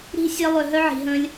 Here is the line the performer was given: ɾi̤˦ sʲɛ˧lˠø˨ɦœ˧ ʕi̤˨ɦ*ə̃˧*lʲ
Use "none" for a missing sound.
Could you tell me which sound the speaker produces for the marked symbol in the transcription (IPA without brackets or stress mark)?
ə̃˧